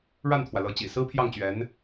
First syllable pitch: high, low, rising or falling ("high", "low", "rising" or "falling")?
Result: falling